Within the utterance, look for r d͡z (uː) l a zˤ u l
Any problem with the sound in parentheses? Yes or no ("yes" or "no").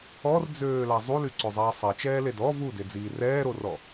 yes